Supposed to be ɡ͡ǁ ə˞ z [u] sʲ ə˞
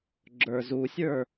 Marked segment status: correct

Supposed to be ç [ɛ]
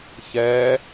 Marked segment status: correct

